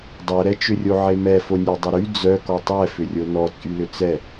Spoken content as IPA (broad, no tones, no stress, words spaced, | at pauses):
dˤœɾɛt͡ʃʏrʲo ʕemɛfo nʲedˤʊɾy d͡zœ kɔtˤɛfʏrʲo nɔt͡sʼylʏ t͡sɛ